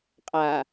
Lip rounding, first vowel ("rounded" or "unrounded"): unrounded